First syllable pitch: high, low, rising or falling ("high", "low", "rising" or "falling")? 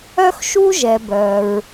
high